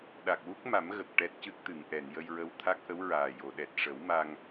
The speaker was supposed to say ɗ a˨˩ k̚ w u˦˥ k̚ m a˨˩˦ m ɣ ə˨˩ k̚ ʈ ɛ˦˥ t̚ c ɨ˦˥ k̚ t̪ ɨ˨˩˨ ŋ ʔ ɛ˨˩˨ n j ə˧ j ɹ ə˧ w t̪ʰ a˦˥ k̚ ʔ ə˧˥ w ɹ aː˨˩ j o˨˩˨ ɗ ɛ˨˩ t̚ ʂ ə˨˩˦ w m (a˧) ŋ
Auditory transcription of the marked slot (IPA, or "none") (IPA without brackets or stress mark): a˧